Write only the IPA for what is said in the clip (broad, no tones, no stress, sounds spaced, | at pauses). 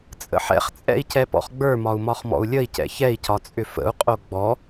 t͡sʼ ə̰ ħ ɛ̰ χ t͡sʼ ɛ̰ i̯ c ɛ p ɔ̰ χ ɡ͡b ə˞ m ɒ u̯ m ɒ χ m ɔ̰ u̯ lʲ ə i̯ c ɛ̰ ç ɛ i̯ c ɒ t͡sʼ ʏ f ə̰ u̯ qʼ o ɡ͡b ɔ